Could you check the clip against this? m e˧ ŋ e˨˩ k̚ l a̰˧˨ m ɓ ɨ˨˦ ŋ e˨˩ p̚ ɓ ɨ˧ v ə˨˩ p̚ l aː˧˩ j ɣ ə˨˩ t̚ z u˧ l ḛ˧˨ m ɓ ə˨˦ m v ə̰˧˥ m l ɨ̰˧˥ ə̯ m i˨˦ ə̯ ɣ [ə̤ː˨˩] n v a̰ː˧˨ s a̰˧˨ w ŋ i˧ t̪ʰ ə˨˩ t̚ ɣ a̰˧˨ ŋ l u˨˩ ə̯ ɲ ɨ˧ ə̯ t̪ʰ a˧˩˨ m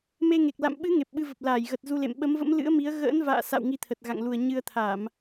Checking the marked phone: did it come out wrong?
yes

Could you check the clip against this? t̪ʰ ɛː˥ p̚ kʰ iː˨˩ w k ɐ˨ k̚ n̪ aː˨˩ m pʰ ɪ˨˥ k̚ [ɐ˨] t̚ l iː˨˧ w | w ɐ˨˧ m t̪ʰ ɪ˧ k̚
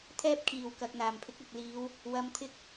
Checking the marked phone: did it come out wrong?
no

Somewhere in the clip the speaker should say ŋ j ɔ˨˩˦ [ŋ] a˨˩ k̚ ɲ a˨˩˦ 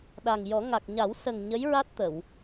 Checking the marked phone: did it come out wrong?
no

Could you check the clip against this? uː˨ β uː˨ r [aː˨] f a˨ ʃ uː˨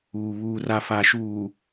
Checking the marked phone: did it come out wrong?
yes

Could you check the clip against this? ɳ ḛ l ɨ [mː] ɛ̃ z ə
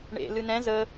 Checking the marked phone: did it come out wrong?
yes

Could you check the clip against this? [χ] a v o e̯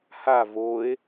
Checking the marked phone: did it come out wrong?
yes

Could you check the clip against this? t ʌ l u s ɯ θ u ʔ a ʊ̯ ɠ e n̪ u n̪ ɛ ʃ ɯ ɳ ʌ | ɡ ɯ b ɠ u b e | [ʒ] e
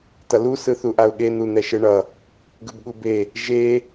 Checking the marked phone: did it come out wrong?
no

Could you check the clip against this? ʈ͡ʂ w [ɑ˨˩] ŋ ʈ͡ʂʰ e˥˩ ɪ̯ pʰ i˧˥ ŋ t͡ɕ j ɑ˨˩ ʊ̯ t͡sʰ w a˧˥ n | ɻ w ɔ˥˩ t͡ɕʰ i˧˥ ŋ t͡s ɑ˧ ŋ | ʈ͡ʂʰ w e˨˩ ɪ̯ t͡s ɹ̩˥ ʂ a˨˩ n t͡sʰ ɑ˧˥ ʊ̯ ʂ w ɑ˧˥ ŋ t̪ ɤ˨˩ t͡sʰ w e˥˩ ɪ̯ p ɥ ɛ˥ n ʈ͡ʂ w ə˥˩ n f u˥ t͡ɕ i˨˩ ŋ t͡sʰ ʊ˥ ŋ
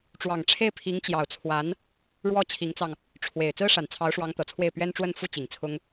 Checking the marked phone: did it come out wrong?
no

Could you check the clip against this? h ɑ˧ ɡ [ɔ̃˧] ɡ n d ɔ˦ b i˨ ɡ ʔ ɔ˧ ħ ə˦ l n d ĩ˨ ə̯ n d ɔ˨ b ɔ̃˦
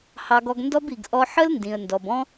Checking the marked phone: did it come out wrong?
yes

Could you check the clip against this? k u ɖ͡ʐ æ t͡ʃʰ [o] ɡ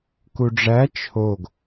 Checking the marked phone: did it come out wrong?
no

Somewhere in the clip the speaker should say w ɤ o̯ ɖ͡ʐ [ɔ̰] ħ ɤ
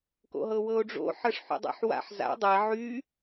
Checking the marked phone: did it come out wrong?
yes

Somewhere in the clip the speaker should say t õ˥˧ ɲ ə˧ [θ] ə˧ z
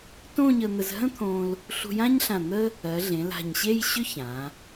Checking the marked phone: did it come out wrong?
yes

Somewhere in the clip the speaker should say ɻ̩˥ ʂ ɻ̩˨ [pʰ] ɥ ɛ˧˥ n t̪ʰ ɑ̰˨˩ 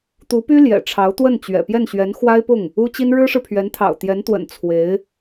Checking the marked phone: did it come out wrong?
no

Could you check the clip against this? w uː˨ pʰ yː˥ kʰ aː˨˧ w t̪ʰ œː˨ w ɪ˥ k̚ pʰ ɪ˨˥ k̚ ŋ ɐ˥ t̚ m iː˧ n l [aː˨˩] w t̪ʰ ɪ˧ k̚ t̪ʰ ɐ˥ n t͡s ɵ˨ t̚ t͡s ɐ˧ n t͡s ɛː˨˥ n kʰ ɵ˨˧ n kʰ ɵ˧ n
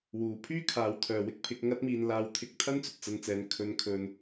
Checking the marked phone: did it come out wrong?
yes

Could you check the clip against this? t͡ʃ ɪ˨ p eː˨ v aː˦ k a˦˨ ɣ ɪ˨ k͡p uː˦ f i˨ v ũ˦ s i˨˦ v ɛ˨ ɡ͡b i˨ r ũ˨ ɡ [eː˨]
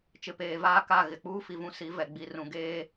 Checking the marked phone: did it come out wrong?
yes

